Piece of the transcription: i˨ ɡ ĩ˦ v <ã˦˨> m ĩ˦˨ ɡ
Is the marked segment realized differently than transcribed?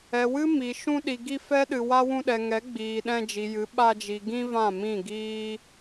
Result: no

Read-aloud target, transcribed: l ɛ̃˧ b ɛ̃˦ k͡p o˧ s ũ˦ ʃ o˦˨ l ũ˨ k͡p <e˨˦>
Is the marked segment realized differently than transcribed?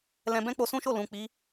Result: yes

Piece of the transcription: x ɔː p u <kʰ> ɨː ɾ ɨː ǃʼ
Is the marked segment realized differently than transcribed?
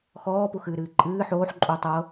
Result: yes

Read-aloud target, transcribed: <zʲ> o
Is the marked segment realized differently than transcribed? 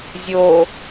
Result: no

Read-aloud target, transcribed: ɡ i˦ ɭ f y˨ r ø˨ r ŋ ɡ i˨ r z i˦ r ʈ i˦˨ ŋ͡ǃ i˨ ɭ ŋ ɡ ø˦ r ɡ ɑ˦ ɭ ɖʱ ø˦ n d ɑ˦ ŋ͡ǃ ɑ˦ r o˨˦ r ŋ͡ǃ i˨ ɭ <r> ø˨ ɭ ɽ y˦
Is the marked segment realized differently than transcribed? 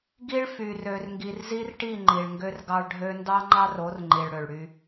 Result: yes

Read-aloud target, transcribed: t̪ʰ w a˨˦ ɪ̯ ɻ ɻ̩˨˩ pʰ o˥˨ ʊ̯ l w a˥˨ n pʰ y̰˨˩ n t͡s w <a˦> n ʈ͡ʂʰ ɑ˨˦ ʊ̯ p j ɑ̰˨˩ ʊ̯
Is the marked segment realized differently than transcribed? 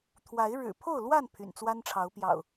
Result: no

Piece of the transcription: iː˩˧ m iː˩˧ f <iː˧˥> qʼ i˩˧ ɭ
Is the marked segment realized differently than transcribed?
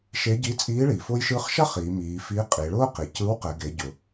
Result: no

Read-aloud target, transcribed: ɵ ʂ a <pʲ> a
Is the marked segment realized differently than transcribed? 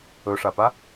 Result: yes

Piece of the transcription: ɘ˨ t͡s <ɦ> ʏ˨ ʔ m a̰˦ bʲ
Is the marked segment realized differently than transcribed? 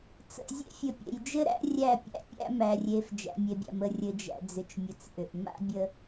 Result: yes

